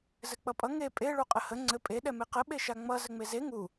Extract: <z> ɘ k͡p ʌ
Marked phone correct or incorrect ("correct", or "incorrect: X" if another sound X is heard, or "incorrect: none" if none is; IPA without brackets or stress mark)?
correct